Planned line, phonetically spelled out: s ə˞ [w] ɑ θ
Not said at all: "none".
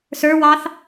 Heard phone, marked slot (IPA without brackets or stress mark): w